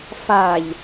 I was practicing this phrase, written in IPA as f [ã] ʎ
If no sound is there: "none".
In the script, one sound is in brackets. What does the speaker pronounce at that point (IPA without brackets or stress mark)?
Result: a